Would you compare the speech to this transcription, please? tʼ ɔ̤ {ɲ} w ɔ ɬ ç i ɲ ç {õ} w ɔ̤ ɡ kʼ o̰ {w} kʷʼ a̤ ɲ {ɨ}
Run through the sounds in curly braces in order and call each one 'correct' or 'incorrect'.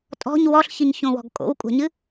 correct, correct, correct, correct

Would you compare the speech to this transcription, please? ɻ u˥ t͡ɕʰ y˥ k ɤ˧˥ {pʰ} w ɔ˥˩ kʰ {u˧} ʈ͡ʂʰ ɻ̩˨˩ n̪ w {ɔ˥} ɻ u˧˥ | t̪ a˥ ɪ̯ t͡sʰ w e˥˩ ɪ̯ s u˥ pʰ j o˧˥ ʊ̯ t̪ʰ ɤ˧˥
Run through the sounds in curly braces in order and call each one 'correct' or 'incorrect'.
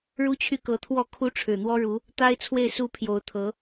incorrect: t̪ʰ, incorrect: u˥, correct

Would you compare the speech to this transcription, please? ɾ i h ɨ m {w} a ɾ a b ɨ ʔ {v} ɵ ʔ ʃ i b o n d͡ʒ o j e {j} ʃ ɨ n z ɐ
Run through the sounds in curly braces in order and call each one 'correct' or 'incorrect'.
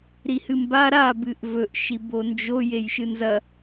incorrect: b, correct, correct

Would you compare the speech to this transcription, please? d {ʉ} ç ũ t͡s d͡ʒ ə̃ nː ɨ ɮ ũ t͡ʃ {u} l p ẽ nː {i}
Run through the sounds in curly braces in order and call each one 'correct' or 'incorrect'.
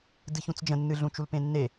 incorrect: ɨ, correct, incorrect: e

